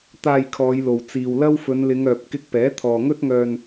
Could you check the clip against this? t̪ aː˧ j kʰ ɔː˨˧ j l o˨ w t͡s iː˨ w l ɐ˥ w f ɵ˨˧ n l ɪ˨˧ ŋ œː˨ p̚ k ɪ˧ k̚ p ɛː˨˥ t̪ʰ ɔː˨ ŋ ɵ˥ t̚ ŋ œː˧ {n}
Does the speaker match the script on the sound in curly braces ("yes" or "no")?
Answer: yes